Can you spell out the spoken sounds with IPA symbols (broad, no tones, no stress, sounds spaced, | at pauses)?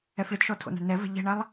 ɛ f ɭ ɪ d ʃ ɔ tʰ o̰ n a̤ ɳ n ɛ v ɛ̤ ʎ ɛ̤ ɳ a lˠ